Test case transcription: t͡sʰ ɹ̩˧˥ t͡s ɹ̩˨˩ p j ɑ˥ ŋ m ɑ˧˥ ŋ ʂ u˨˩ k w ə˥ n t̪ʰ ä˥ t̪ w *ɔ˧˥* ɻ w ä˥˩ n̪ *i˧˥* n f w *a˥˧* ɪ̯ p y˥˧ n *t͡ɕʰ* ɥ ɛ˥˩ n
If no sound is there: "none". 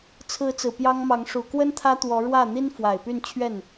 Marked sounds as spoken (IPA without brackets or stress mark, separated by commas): ɔ˧˥, i˥, a˨˩, t͡ɕʰ